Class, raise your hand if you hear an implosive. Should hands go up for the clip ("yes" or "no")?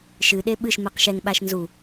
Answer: yes